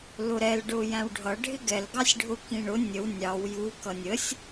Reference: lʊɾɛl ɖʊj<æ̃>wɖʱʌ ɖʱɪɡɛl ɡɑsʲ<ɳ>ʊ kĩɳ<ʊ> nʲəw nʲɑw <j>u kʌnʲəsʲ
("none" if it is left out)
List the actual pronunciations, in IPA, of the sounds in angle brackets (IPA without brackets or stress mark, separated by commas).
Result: æ̃, ɖʱ, ʊ, j